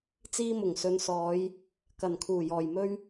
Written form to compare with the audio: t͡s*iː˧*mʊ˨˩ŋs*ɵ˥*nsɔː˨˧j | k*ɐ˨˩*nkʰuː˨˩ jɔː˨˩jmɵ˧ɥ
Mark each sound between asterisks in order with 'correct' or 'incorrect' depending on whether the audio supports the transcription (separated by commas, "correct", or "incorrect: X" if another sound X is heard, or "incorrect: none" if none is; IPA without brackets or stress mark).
correct, incorrect: ɵ˨˧, correct